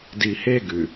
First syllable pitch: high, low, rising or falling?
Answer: low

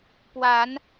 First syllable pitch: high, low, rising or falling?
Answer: rising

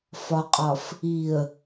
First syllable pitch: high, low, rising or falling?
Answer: low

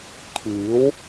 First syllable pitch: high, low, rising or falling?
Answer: rising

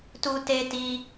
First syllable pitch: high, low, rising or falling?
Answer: high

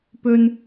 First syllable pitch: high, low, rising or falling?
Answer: high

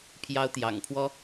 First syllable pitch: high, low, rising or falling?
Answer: high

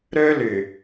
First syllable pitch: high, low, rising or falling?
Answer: high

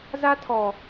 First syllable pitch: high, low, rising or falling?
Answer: high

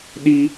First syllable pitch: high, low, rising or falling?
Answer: high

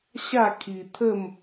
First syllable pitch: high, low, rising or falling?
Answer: falling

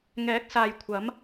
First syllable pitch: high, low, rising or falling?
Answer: rising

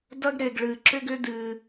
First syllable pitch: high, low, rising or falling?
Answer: high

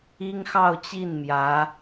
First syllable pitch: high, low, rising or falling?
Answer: high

